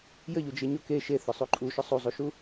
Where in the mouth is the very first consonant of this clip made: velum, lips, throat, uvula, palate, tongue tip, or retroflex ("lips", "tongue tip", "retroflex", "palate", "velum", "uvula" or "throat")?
palate